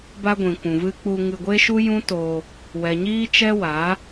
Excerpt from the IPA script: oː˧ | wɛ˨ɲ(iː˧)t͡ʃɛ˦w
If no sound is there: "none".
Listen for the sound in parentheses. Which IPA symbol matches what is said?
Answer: iː˦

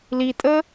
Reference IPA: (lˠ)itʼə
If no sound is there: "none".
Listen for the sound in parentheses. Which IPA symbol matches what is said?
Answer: l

